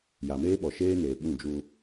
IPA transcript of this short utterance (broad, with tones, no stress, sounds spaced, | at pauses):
j a˨ m eː˦ ɓ ɔ˨ ʃ eː˦ n eː˨ ɓ ũ˦˨ d͡ʒ u˦